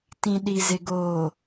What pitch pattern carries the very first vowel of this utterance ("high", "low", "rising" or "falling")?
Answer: low